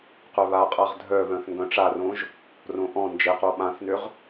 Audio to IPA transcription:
qœβaqʼaʁ dʱœβœ̃θ ŋɡœ̃ʈ͡ʂarõʒ | rõʔɔ̃ nd͡ʒɪqo ɓãθnʏʁ

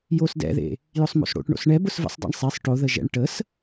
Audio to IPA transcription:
josdɛ̰ðḛ | jʊsˤmo̰sɽo̰ʈɳo̰s ɳɛ bʊsvə̰sˤdˤḛɳ sˤesˤ ʈoðə ʒɛ̰ɳ ʈəs

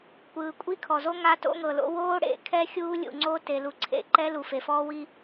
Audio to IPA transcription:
kʷɯː˨kʷʼi˦kʰɔ˨zo˦ ŋa˦to̰˦ŋɤ˨lo̰˦ woː˦ɽḛ˨kʰɛ˦ xʲuː˦lʲṵ˨ŋ͡ǀo˦te˨ lu˨ǀʰḛ˦ǃɛ˦ lu˨fe˨fɔː˦wi˦

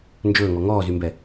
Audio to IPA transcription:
nd͡ʒɵːŋɔ ŋɔːzymbɛ

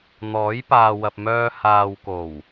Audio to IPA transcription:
n̪ɔː˨˥jpaː˨wɐ˨p̚ mœː˧ haː˨wko˨˩w

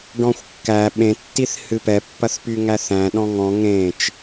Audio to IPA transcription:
ɖɔ̃xʷkːæ ɓẽ tːiθhɨpɛ pːɐθpyŋæθæ̃ ɗɔ̃ŋɔ̃ ŋẽt͡ʃ

